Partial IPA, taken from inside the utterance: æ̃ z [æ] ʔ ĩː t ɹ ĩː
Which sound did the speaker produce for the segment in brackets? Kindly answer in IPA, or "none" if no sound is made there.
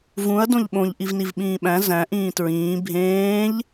æ̃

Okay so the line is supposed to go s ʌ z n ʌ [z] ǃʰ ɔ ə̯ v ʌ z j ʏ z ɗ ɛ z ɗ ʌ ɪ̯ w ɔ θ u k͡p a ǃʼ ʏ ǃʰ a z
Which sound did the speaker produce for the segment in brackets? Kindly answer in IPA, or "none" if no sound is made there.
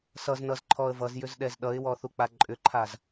z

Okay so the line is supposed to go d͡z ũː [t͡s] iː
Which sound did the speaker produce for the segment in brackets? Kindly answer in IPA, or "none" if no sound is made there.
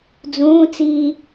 t͡s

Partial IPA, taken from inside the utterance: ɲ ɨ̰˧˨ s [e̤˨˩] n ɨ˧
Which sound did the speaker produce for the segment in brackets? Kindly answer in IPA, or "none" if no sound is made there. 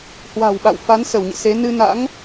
e˨˦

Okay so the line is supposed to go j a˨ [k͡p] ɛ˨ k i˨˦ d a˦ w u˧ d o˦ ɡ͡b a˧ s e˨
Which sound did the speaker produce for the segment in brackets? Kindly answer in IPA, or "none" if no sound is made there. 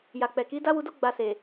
k͡p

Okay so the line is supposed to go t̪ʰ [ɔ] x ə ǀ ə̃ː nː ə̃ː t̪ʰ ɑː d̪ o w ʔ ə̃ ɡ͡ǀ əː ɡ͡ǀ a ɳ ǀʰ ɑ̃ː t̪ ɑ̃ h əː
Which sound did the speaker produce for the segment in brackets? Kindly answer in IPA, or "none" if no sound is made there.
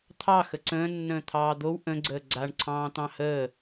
ɑ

